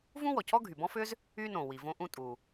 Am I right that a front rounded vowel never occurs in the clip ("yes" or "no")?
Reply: no